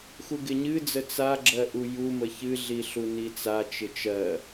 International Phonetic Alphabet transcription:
x u ɡ ɪ ɲ ɨ d͡z ə t͡s a ɡ͡ǁ ɜ ʔ u j u m ə ç ɨ ɮ i ɬ u n i t͡s a t͡ʃ ɪ t͡ʃ ɜ

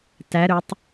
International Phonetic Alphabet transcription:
t æ ɾ ɵ tˤ

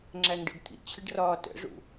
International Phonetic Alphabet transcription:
ŋ͡ǁ æ ŋ ɖ ə̰ d t̪ʰ ḭ t͡ɕʰ ə ɖ r ɒː t ə̰ ʐ ṵ

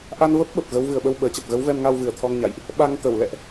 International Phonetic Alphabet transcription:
ʔ a˧ n v ə˦˥ p̚ ɓ ə˨˩ p̚ ɣ ə˨˦ w v ɨ˨˩ ə̯ ɓ ə˧ w ɓ əː˨˩ t͡ɕ ə˨˩ p̚ ɣ ə˨˦ w v ɛ˧ m ŋ a˧ w v ɨ˨˩ ə̯ t̪ʰ ɔ˧ ŋ ɲ a̰˧˨ j ʔ | ɓ a˧ ŋ t̪ ə˧˩ w l ɛ̰˧˨ ʔ

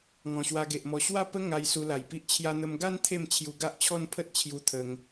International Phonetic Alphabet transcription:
ŋ ɔ̃˨˩ ɕ w a˧ ɡ e˨ ʔ m ɔ˧ ɕ w a˥˧ p ə˦ ŋ a˧ j s u˧ l a˨˩ j p i˦ ʔ t͡ɕʰ j a˧ n̪ ə˧ m ɡ a˦ n t̪ʰ e˥˧ m t͡ɕʰ j u˧ ɡ a˦ ʔ t͡ɕʰ ɔ˦ n pʰ ə˦ t̚ t͡ɕʰ j u˧ t̪ʰ ə˧ ŋ

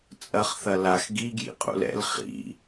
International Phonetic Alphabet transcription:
t͡sʼ ɐ χ θ ɐ l a x ɡ i ɡ j ḭ qʼ ṵ l ɛ̰ l χ ḭ

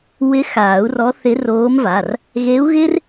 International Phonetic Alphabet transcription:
w ɪ˧˥ x aː˨˩˦ u̯ r ɔ˧˥ θ ɪ˧˥ r oː˧˥ m v a˩˧˩ r | ɣ e˧˥ u̯ ɣ ɪː˥ r

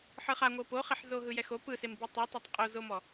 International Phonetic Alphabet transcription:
ħ ɯ χ a ŋʷ ɤ p o χ e ħ z o ɦ ɯ j ɛ x o p ɯ s e m b i tˤ ɯ tˤ ɤ tˤ qʼ o z o m ɔ

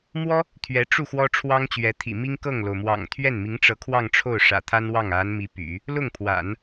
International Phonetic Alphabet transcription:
m w ɔ˥ | t̪ʰ ɥ ɛ˧˥ ʈ͡ʂ u˥˩ x w ɔ˥ ʈ͡ʂʰ w ɑ˥ ŋ t͡ɕ ɥ ɛ˧˥ t̪ʰ ḭ˨˩ m i˥ ŋ k ɤ˥˩ ŋ l o˩ ʊ̯ m w ɑ̰˨˩ ŋ t̪ʰ ɥ ɛ˥˩ n m i˧˥ ŋ ʈ͡ʂ ɤ˧˥ kʰ w ɑ˥˧ ŋ ʈ͡ʂʰ o˥˩ ʊ̯ ʂ ä̰˨˩ t̪ʰ a˥ n w ɑ˥˩ ŋ a˧˥ n m i˧˥ p y̰˨˩˦ | l ʊ˥˩ ŋ pʰ w a̰˨˩˦ n

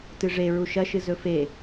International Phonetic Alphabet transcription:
t ɨ ʐ e ɹ u ʃ ɐ ʃ ɨ z ɵ f e

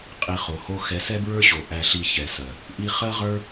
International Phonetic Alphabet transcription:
qʼ i˨ χ o˨ h o˦ x ɛ˨˦ s ɛ˦ b ɹ ə˞˦ ɕ o˨ ʔ æ˧ ɬ i˧ ç ɛ˨ s ɜ˨ | ʔ i˧ χ ɜ˦ ʁ ə˞˦

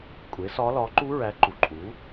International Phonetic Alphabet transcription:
kʷʼ e˩˥ s ɒ˧˥ l ɒ˩˥ ǃ u˧˥ ɹ æ˩˥ ǃ u˩ ǃʼ u˩˥

